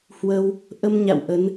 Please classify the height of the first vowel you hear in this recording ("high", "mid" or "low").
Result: mid